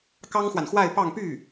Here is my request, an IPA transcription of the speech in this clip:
k ɑ˥ ŋ x w a˨ n x w a˥˧ ɪ̯ p ɑ˥˧ ŋ p y˥˩

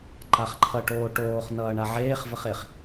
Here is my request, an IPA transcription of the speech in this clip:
ǃ a χ ǃʰ ʌ ʈ oː ʈ oː χ n ʌː ɳ a ʕ eː χ v ə χ e χ

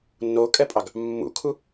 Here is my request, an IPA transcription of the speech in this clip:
nː o kʼ ɛ pʼ ɑ ɡ | mː ṵ kʰ u

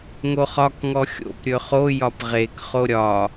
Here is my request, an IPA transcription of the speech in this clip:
ŋ o χ ɒ k ŋ ɔ xʲ o̰ p ɾʲ ɵ χ o j ɒ p ʁ e k χ o ɾʲ ɒ

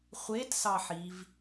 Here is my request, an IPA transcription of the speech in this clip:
χʷ e t s ɑ ħ i v

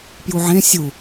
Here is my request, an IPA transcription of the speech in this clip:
p j u ʕ ẽ sʲ u

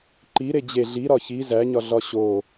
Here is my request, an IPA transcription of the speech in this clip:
ǃ i ɾ e d͡ʑ e ɮ i ɾ ɒ ç i z æ ɲ ɒ ɮ ɒ ɕ o

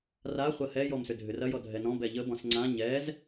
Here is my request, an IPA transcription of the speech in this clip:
r a χʷ ɐ h ɛ j ɔ m s ʏ dʱ ʏ r ɐ j ɔ dʱ ɛ n ɔ̃ b ɛ ʎ ə b ɔ̃ s ŋ͡ǀ ã ɲ ɛ z

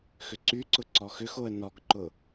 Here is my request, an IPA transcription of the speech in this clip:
x ʏ ǀ y ǀ ʊ ǀ ɔ x ʏ x o ə̯ n ɔ ɡ ǃ ʊ

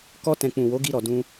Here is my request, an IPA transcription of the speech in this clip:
k ɔ˧ t ɛ̃˨ k͡p ũ˨ w o˨˦ ɡ i˧ ɾ ɔ˨ d ũ˧

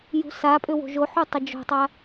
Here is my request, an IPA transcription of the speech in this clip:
j ṳ s a pʼ ʏ w o̤ ʒ o ħ u tˤ ɪ d͡ʒ o̤ tˤ a

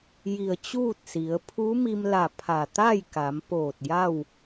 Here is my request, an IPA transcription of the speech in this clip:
j i˧˩ ə̯ t͡ɕ uː˥˨ t̚ s i˩˧ ə̯ pʰ u˧˥ m i˧ m l a˧˩ pʰ a˧˩ t̪ a˥˨ j k a˩˧ m p oː˧˩ t̚ j a˥˨ w

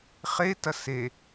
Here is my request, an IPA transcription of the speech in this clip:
χ e t ɐ s e

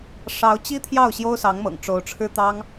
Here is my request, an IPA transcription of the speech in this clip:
ʂ ɑ˧˥ ʊ̯ t͡ɕ i˥ t̪ʰ j ɑ˥˩ ʊ̯ ɕ j o˥ ʊ̯ s ɑ˧˥ ŋ m ɤ̰˨˩ ŋ ʈ͡ʂ o˧˥ ʊ̯ ʈ͡ʂʰ ɻ̩˥ t̪ ɑ˥ ŋ

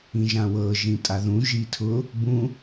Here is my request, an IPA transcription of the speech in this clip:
ĩ ʒ ã w ɤ ʒ ĩ tʼ a ð ũ ʒ i tʰ ʊ | b ũ

